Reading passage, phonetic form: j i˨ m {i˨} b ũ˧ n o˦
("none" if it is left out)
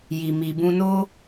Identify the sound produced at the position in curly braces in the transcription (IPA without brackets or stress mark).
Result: i˨